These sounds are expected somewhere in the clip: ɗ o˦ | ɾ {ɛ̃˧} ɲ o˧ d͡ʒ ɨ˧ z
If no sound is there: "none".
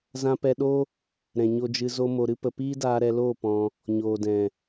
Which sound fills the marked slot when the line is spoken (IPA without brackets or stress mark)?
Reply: ɛ̃˨